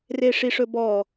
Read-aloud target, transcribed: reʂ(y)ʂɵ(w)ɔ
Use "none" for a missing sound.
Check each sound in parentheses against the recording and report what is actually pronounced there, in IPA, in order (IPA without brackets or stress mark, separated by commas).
i, b